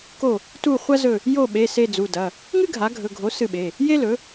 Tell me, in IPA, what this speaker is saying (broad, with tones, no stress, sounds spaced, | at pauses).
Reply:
k o˦˨ | t u˦˨ χʷ ɐ˥ z ɵ˦˨ | j o˦˨ ɓ e˩˧˩ s e˦˨ d͡z u˩˧˩ d ɐ˩˧˩ | ŋ ɨ˥ ɡʱ a˩˥ ɡʱ ɵ˩˧˩ ɡʱ o˩˥ s ɨ˦˨ ɓ e˩˧˩ | j e˥ l ɵ˩˥